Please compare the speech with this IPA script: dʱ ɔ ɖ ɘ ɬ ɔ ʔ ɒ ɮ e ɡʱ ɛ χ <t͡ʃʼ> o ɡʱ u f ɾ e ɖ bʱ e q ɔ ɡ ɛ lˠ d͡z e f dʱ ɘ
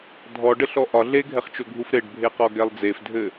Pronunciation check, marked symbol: incorrect: t͡ʃ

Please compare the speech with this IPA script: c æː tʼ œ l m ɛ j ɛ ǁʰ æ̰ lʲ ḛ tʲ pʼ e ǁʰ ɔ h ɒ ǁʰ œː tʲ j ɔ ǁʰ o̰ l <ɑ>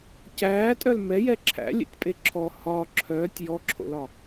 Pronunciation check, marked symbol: incorrect: ɒ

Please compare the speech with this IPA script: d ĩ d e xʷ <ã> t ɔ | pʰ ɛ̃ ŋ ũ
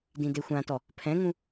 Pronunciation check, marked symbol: correct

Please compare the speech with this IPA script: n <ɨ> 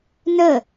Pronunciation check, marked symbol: incorrect: ə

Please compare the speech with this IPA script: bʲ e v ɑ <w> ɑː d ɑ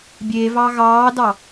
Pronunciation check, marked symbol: incorrect: ɣ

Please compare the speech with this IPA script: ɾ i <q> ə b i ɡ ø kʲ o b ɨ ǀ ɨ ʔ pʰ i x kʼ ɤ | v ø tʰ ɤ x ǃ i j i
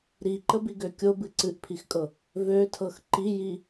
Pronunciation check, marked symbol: incorrect: ǃ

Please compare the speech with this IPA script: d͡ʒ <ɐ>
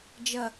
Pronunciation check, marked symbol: correct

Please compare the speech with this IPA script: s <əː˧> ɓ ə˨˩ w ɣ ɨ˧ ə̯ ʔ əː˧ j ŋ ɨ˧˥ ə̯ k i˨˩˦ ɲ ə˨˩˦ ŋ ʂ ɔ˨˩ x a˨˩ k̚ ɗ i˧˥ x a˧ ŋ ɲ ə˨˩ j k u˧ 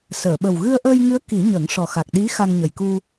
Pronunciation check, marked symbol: incorrect: əː˨˩˨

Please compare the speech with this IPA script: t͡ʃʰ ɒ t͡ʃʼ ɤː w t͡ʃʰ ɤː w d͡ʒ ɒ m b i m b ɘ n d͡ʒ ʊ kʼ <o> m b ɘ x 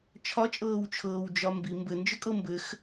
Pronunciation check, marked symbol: incorrect: ɤ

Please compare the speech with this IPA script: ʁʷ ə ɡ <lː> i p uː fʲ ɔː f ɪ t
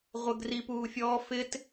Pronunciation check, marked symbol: incorrect: r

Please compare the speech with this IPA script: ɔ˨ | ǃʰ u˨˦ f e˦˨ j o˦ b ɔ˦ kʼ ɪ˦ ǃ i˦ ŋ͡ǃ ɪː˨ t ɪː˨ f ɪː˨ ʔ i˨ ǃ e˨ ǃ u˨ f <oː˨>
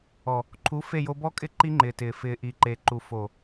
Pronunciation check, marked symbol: incorrect: o˨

